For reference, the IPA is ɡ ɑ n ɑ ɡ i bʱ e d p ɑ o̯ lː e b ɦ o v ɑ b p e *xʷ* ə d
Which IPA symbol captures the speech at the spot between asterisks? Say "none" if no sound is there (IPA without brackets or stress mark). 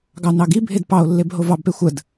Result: xʷ